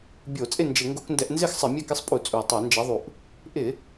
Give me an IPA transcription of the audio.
bʲo˧˩˧t͡sʼɪ˥˨nd͡ʒɪ˧˩˧ ŋɡo˧˩˧kndɛ˧˩˧ʔnzɪ˥˨xsˤɪ˧˩˧ mʲɛ˥˨kɪ˥˨sˤpʼu˧˩˧ t͡sʼu˨˩tˤo˧˩˧nd͡ʒɛ˨˦ðˤu˨˩ʔ | ʔɪ˧˩˧

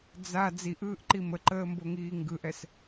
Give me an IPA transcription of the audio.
d͡za d͡ziʔɯːʔǃi məǃəːmboŋiː ŋɡɯʔɛs

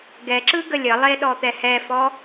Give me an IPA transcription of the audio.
ɡɛǁɯ ɡəlʲəlˠe ɗɔt̪ɛhɛfɔ

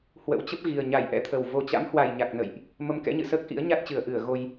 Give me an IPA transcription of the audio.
hwə̰˧˥wt͡ɕə˦˥p̚ɣi˨˩ə̯ ɲa˧˩jʔɛ̰˧˥t̪ʰə˨˩w vo˨˩t͡ɕa̰˧˥mhwa˨˩j ɲa˨˩k̚nə̰˧˨jʔ | mə˧mkɛ̰˧˥ɲɨ̰˧˨səː˦˥k̚ ʔḭ˧˥ə̯ɲa˦˥t̚t͡ɕɨ˨˩ə̯ ʔɨ˧˩ə̯ ɣo˧j

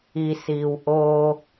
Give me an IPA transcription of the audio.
isiːw ʔoː

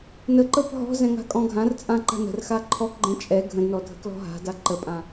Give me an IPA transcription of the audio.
nəǃɤp ɦɔ̤zɛ̃ŋa̤ kʼɔ̃ɡʱãrt͡sʼãǃa̤ nə̤r xaǃʰɔkɡ͡ǃɛ̃ t͡ʃʼɛ ɡʱə̃dnɔ dʱə̤klɔ̤ɦa̤da ǃəpʼã

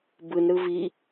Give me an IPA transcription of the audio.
bɯnɾɯ vi

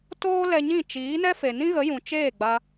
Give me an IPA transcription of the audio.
toː˦lɛ˧ɲĩ˦˨ t͡ʃiː˨˦nɛ˦ fe˨nĩ˦ɣə˨˦jũ˨ t͡ʃeː˦˨ɡ͡ba˧

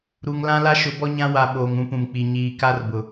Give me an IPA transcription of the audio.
ɾu˨ŋlã˦la˦ ʃʊ˨˦bɔ˦ɲã˦ wa˨ ɓoː˨ŋũ˦pũ˨mk͡pi˨ ɲiː˨ka˦r bʊ˨

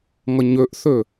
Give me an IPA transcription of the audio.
ŋʌɲøʔθø

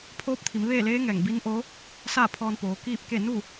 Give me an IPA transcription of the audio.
pʰoː˧˥p̚t̪ʰi˩˧mʋeː˥˨leː˧˥ ŋɛː˧˩ŋbi˧˥n ʔoː˧˥ | saː˥˨pʰɔː˧npoː˩˧ kiː˥˨p̚ke˥˨ nu˥˨

